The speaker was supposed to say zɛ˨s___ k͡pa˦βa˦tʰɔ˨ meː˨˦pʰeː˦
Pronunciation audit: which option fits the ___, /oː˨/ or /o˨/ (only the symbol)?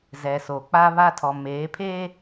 o˨